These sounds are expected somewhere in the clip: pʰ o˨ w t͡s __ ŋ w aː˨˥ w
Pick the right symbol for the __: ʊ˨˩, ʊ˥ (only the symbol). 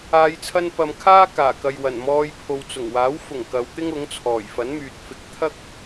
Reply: ʊ˨˩